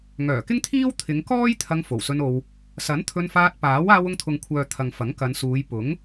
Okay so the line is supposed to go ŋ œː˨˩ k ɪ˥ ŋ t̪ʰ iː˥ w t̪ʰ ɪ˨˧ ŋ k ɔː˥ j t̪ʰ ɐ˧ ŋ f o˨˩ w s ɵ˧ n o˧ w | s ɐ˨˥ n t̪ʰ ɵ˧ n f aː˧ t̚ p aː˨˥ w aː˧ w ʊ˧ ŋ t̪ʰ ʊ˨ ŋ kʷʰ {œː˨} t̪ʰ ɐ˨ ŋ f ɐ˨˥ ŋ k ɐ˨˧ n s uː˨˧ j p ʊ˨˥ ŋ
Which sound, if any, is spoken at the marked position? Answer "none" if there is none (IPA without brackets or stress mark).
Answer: œː˨